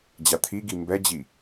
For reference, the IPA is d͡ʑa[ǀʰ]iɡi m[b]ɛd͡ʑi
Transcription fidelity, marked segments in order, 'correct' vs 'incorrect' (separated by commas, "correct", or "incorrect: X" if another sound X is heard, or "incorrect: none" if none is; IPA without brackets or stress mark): incorrect: t̪ʰ, correct